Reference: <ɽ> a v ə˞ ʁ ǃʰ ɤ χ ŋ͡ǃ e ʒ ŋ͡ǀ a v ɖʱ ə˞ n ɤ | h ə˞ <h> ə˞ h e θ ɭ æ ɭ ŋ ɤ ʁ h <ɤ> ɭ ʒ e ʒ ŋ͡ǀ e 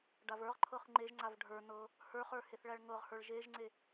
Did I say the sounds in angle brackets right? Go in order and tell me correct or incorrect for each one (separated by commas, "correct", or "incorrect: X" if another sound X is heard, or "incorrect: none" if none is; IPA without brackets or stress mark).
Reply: incorrect: ɖ, incorrect: χ, incorrect: ə˞